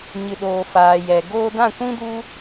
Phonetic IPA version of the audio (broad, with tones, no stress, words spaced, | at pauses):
ɲɨ˨ɗoː˨faː˨jɛ˨ ɡoː˧dã˦˨kʷĩ˦du˦